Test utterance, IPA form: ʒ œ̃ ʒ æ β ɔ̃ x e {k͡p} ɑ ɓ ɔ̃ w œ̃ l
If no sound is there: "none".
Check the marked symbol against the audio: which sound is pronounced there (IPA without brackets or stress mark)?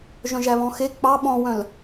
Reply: k͡p